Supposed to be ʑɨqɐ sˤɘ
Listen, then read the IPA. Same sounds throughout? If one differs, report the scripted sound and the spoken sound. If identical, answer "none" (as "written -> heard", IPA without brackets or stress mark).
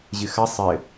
q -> x